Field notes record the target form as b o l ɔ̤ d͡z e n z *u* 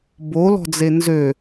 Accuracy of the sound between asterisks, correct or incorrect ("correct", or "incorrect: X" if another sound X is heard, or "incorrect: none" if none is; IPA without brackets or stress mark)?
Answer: incorrect: ø